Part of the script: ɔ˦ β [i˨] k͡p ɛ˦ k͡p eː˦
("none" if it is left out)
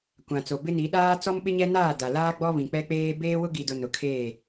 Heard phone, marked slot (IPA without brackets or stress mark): ĩ˨